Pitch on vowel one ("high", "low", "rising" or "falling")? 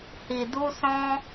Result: low